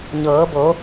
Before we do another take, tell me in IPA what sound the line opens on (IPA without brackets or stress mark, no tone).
ɲ